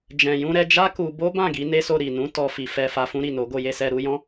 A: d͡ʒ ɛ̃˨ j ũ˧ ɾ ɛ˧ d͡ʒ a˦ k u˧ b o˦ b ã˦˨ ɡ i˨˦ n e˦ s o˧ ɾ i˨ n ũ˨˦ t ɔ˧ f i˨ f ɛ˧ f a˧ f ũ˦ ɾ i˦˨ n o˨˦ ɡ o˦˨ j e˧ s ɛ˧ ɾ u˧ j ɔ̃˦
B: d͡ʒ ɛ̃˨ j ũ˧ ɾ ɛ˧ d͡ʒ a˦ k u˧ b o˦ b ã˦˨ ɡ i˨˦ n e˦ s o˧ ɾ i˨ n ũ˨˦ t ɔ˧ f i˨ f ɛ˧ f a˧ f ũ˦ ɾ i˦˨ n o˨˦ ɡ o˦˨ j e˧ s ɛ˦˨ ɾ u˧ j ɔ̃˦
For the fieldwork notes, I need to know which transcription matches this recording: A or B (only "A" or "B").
A